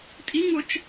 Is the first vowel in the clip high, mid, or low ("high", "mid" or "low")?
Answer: high